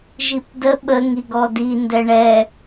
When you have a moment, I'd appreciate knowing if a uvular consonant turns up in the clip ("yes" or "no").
no